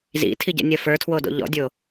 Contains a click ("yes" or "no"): no